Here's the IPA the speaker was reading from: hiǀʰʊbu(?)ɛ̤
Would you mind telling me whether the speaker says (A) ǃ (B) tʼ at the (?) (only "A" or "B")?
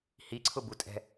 B